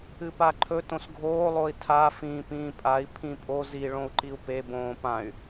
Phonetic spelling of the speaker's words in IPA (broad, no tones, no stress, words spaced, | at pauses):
ɨpaǃʰɵ tõsɡʱoː lˠoi̯tʰa fĩːpĩːpʼai̯ pʰĩpʼo zi ɭõu̯ǃiu̯pe bõːpãy̯